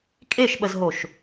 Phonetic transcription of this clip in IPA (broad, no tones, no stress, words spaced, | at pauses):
kʼeʃɓəzɦoʃ